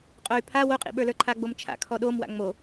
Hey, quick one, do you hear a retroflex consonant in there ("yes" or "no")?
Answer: no